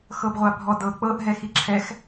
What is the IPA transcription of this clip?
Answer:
x ɤ b ʁʷ a bʱ ɔ d ɤ k͡p ɤ ʔ ɦ ɛ x i ǁʰ ɛ x

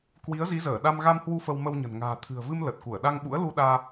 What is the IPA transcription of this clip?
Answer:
k w i˨˦ ə̯ z i˨˦ z əː˧˩ ɗ a˧ m ɣ a˧ m h w u˧ f ə˧ w m ə˧ w ɲ ə̤˨˩ n ŋ a̤ː˨˩ t̪ʰ ɨ̤˨˩ ə̯ v ɨ˧ m l ə˨˩ t̚ k u˧˩ ə̯ ɗ a˧ ŋ ɓ ṵ˧˥ ə̯ l u˧ ɗ aː˧

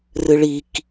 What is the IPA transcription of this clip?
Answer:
r ɨ ɭ i k

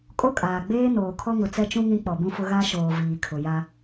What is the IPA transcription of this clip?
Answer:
kʼ o˦ kʼ aː˨ ɡ͡b eː˦ n oː˨ kʰ ɔ˦ ŋ ʊ˨ t͡s ɛ˦ t͡ʃ ũ˦ ŋ ĩ˦ k͡p ɔ˨ b ũ˦ f ʊ˦ ɣ a˦ ʃ oː˨ v iː˨ kʰ ʊ˨ j a˦

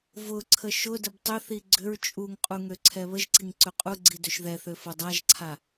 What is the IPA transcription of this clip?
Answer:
v ʊ ǀʰ ə ʃ ʊ d ə b tˤ ʏ θ i ɡ͡ǀ ʏ ɹ t͡ʃʼ u ŋ qʼ u ŋ ø ǀʰ ɛ β ə ʒ ǀ i ŋ ǀ ø qʼ u ɡ͡ǀ i d ø ʃ ð ɛ θ ø f ʊ dˤ a ʒ ǀʰ a

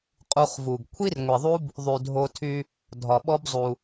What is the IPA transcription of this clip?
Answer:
qʼ u˨ χ v u˩ ɡ kʷʰ i˥ r ŋʷ i˩ ðˤ u˦ b | ðˤ y˩ dʱ o˨ tʰ y˨ | dʱ ɒ˩ ɓ ɔ˦ b zˤ u˩

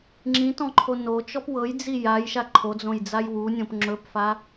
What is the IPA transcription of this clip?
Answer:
ŋ͡ǁ ĩ t ɔ̃ ǃʰ o n o t͡ʃ ɔ p w ɤ j d͡z i j a j ʃ a ǃʰ o d͡z õ j d͡z a j w u nʲ õ p ŋ͡ǁ ɵ p f a

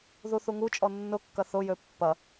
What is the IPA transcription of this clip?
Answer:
ð u θ u ŋ u t͡ʃʼ ɔ nː ʊ kː ɐ θ ʊ j ø pː ɐ

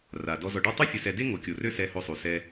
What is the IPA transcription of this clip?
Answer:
r a˩ d ɔ˨ z ɔ˨ ɖ a˥ tˤ ø˥ fʲ ə˨ s ɛ˨ d e˥ ŋ o˩ kʲ o˩ r ø˦ s ɛ˨ h o˨ sˤ u˩ s ɛ˨

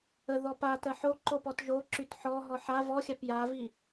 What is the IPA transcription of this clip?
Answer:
ə ð ɔ p a t ɜ ħ o ǃ o p ɔ t ʒ o ǁ y t ħ ɔ ɦ ɔ ħ a v ɔ xʲ a p j a v i

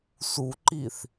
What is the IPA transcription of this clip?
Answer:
s u ǃ i θ

